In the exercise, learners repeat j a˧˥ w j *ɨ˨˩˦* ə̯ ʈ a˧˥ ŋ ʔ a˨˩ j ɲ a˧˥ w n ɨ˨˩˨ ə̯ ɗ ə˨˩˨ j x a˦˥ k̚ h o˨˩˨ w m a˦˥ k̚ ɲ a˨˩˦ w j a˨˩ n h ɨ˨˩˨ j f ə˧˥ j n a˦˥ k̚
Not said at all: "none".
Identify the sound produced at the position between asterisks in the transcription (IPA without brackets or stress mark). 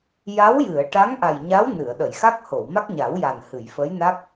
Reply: ɨ˨˩˨